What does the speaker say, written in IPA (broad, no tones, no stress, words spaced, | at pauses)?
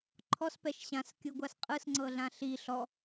ǃʰɔspɛʃ ɕãskʲɯɡʷas qʼɯsŋ͡ǀɤɮã ɬi ɬɔ